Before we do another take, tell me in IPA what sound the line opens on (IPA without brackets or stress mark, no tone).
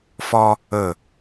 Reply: f